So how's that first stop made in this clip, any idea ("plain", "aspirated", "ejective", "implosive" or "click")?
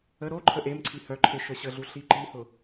click